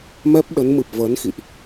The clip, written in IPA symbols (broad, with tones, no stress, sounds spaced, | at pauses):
m ɛ˦˥ p̚ ɗ ə˨˦ n m ɨ˨˩ p̚ v əː˨˦ n x ḭ˧˨ ʔ